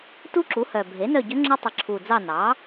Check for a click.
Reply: present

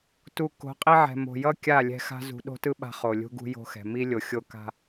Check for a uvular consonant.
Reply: present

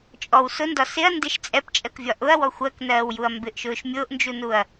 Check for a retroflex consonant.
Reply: absent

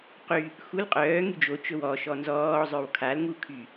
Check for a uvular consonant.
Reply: present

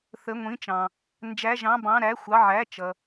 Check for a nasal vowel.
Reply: present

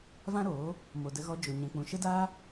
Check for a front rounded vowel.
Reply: absent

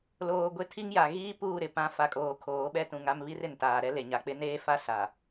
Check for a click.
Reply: absent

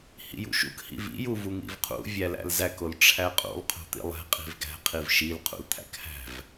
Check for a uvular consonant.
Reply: present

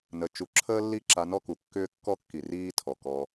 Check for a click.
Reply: present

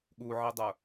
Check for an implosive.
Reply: present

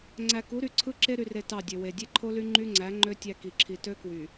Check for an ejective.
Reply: absent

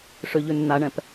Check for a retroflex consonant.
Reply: present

